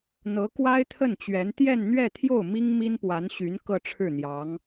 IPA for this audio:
n̪ ɤ˧˥ k w a˥ ɪ̯ t̪ʰ ə˥˩ n t͡ɕ ɥ ɛ˧˥ n t̪ j ɛ˥˧ n n̪ ɥ ɛ˥˧ t̪ʰ j o˥˩ ʊ̯ m i˥ ŋ m i˥ n p w a˧˥ n ɕ y˧˥ n k ɤ˥˧ ʈ͡ʂʰ ɻ̩˥˩ n̪ j ɑ˧˥ ŋ

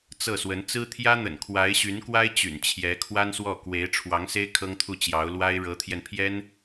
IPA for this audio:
t͡s ɤ˥˩ s w ə˧˥ n t͡s ɹ̩˥ t̪ʰ j ä˥ n̪ ə̰˨˩ n kʰ w a˧˥ ɪ̯ ɕ y˧˥ n k w a˥ ɪ̯ t͡ɕ y̰˨˩ n t͡ɕʰ j ɛ˧˥ kʰ w a˥ n s w ɔ˥˩ k w e˧˥ ɪ̯ ʈ͡ʂʰ w ɑ˧˥ ŋ s e˥ ɪ̯ kʰ ɤ˥ ŋ t̪ʰ u˥˩ t͡ɕ j ɑ˧˥ ʊ̯ l w a˥ ɪ̯ ɻ ɤ˧˥ t̪ʰ j ɛ˧ n pʰ j ɛ˥ n

